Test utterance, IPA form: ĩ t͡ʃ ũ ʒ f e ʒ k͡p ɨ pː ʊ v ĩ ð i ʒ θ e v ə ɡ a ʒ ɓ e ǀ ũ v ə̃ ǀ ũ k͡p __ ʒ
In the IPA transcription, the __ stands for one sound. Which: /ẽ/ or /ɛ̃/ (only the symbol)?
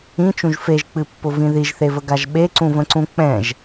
ɛ̃